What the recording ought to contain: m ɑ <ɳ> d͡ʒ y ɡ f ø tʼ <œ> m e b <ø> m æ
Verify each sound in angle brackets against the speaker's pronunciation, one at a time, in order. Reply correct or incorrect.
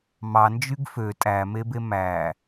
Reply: incorrect, incorrect, incorrect

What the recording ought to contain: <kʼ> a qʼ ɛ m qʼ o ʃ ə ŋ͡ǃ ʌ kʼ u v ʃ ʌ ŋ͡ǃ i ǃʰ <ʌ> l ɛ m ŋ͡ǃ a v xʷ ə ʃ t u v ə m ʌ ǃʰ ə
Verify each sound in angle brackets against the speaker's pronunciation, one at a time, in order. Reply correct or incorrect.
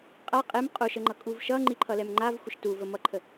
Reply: incorrect, correct

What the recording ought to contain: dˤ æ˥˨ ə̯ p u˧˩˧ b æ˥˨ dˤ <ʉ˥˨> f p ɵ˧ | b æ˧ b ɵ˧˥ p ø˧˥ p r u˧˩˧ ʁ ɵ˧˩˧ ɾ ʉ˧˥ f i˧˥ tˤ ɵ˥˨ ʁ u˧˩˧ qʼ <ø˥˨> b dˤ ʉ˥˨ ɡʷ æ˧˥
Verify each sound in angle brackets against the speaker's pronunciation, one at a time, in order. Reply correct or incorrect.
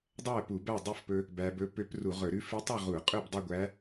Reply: correct, correct

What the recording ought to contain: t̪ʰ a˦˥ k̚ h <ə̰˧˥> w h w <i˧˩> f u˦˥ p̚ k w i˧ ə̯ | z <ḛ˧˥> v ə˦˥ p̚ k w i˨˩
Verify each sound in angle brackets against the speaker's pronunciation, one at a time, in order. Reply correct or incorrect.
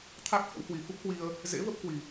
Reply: correct, incorrect, correct

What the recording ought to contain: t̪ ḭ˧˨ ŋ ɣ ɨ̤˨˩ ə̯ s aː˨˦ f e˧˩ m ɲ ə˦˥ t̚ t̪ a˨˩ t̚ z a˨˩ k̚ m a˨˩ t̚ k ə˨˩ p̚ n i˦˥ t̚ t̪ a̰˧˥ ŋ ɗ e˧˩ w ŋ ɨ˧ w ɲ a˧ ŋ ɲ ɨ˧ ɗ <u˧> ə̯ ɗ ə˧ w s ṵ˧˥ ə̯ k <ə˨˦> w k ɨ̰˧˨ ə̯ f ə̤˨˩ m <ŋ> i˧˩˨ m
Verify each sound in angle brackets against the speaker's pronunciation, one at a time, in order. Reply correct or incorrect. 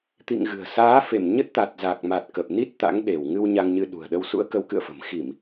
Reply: incorrect, correct, incorrect

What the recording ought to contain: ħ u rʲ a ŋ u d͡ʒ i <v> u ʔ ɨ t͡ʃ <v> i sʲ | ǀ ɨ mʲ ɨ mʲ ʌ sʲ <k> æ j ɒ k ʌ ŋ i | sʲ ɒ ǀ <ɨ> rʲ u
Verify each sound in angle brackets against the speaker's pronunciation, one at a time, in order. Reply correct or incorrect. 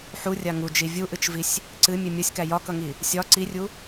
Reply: incorrect, correct, correct, incorrect

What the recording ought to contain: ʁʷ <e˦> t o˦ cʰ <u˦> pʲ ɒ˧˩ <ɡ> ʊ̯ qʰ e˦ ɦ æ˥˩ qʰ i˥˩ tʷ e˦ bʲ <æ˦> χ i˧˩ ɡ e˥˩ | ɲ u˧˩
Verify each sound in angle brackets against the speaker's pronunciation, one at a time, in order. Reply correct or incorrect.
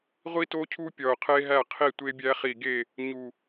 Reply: incorrect, correct, incorrect, correct

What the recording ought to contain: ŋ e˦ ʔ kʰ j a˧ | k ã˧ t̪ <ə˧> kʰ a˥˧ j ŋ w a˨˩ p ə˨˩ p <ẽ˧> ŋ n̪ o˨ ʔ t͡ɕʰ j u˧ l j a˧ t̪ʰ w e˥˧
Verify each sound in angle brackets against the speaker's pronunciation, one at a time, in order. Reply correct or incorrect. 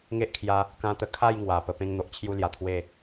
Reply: correct, correct

